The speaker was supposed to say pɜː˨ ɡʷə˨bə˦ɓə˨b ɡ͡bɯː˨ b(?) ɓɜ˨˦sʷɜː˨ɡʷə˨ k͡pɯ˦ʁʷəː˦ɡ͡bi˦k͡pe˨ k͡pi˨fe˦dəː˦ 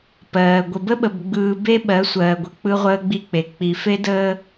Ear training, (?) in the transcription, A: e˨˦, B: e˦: B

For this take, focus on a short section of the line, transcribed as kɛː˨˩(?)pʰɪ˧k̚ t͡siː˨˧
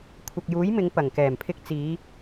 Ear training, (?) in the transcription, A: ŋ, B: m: B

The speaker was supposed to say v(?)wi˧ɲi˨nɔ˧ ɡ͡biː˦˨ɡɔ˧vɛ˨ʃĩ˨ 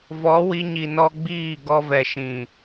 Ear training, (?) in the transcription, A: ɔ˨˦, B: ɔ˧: A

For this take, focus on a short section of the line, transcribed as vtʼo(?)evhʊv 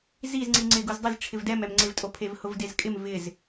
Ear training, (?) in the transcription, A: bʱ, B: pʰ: B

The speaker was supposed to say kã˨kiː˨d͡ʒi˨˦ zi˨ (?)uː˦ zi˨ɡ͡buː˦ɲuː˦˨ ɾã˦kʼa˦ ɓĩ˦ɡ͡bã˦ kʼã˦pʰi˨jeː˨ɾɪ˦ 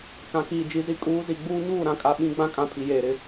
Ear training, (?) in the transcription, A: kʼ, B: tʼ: A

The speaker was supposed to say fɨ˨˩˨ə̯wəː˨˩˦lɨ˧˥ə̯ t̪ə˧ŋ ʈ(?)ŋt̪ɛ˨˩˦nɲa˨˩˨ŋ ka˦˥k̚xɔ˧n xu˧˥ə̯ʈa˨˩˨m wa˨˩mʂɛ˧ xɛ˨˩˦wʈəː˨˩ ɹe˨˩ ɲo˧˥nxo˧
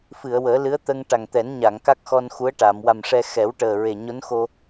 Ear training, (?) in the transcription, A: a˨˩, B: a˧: A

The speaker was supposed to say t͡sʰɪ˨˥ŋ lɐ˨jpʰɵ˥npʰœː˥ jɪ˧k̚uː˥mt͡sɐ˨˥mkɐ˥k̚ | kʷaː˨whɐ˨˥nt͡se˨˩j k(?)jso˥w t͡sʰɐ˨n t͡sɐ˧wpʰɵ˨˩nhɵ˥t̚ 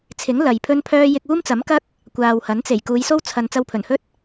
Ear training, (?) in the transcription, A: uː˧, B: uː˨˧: B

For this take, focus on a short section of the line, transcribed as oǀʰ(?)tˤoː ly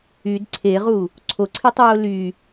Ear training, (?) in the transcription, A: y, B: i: B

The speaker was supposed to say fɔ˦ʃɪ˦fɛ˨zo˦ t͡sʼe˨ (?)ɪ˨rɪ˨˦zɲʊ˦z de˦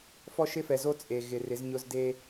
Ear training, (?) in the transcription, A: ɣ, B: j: A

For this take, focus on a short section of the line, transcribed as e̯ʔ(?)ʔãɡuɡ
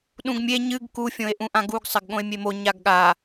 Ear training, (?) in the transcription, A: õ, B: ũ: B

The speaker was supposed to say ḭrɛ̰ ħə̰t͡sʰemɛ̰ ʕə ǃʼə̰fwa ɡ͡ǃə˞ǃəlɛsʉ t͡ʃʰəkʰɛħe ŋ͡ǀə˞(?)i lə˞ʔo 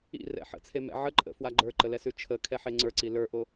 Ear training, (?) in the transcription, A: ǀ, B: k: A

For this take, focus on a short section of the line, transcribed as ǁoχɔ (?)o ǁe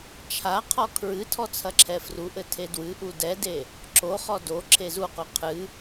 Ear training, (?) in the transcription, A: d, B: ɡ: A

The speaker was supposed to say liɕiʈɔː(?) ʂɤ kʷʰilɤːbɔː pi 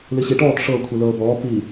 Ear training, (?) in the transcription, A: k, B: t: B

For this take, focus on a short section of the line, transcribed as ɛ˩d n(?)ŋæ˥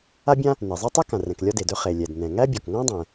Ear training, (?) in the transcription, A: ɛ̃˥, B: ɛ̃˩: B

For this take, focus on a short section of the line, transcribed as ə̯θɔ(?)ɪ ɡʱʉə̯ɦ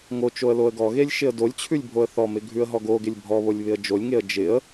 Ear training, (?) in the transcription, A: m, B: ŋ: A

